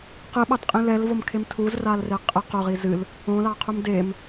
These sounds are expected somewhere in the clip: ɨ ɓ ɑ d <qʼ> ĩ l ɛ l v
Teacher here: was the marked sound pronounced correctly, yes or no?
yes